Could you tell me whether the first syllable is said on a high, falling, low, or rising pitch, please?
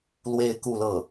falling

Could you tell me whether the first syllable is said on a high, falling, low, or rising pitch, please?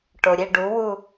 low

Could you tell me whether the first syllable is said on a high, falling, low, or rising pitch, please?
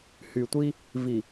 low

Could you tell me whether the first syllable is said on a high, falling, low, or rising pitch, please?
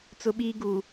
high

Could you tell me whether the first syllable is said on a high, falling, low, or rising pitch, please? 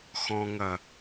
low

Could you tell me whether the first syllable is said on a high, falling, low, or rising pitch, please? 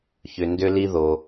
low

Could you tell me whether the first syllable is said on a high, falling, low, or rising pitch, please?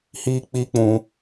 high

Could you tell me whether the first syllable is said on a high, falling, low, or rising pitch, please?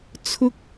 high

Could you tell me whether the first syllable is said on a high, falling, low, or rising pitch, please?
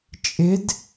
rising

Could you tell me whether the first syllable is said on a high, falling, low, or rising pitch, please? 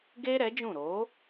high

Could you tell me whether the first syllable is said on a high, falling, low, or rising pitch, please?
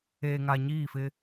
low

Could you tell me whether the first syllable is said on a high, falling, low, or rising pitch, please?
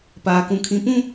low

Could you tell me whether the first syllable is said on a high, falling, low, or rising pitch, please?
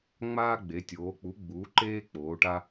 high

